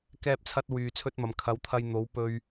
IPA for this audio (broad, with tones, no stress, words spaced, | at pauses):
kɛː˥p̚t͡sʰɐ˥t̚ wyː˧t͡sʰɵ˥t̚mɐ˨˧m kʰɐ˨˥wt̪ʰɐ˧j n̪o˨˥w pɵ˧ɥ